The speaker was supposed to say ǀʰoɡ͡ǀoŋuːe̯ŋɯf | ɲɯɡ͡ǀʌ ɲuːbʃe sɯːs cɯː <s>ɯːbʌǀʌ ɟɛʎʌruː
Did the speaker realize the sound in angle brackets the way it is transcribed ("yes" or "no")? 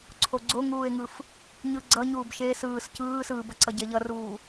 yes